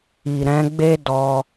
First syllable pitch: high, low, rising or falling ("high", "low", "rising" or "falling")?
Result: low